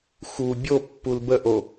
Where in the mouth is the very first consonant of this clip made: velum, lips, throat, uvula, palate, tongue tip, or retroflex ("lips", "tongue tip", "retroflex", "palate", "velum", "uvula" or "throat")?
velum